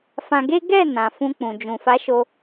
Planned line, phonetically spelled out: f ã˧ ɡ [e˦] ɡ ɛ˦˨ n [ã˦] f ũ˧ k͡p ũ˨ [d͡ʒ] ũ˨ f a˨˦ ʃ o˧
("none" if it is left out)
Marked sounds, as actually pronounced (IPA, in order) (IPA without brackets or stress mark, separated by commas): e˦, ã˨, d͡ʒ